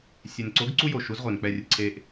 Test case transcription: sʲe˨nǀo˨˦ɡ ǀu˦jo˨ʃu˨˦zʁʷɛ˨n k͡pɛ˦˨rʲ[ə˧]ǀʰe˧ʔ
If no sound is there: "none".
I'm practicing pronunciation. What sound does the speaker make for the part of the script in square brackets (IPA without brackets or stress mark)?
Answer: ə˧